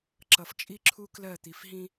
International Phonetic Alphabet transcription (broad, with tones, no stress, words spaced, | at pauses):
ǁʌ˨ft͡ʃʼi˦ ǁʰu˦klɜ˦˨ t̪i˨fɦĩ˦